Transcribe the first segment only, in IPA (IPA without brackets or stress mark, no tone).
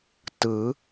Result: t